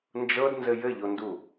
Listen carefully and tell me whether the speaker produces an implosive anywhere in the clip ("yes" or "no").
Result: no